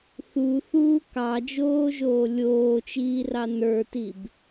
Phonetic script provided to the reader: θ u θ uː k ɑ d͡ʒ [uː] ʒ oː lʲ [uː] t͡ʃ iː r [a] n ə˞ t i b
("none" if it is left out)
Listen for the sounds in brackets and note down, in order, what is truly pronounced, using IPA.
oː, oː, ɑ

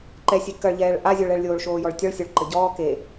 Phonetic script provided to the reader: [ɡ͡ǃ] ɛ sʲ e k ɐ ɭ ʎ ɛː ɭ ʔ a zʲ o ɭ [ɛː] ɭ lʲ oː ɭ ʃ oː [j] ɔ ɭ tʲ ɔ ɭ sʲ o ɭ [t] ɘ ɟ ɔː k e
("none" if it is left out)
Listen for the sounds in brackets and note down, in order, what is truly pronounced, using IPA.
ǃ, ɛ, j, ǃ

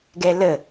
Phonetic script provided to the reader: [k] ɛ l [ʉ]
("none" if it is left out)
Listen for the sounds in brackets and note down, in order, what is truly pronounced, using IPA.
ɡ, ə

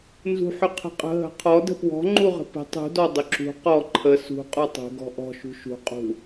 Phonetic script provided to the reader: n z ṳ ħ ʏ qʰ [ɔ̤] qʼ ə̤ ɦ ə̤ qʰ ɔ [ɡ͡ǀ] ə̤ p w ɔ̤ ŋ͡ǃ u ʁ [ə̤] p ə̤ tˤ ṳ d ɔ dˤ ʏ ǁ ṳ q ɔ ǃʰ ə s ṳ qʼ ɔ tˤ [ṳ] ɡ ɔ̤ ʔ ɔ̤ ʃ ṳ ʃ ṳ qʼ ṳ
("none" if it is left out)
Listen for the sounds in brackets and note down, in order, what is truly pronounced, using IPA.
ə̤, d, ə̤, ṳ

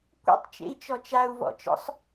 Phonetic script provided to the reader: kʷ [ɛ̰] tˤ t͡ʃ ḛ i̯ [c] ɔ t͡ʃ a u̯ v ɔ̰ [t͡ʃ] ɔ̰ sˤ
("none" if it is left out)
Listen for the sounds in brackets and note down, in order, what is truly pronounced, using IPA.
ɛ̰, t͡ʃ, t͡ʃ

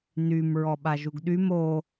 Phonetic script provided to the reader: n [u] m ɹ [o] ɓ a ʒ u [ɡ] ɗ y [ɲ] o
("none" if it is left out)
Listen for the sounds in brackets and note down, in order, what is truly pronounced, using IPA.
y, ɔ, ɡ, m

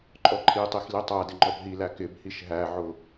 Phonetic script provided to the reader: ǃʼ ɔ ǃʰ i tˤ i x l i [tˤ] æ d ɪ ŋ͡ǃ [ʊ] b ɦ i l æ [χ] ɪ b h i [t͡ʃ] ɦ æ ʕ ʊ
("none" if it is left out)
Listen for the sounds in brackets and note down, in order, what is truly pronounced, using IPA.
tˤ, ɔ, k, ʃ

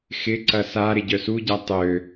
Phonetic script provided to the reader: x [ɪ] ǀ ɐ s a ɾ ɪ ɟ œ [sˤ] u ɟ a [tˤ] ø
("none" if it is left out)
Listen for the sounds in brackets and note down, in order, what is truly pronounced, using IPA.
ɪ, s, tˤ

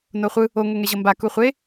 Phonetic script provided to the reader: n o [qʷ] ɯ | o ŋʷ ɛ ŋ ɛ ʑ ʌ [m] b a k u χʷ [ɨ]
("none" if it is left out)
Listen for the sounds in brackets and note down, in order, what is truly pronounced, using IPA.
χʷ, m, e

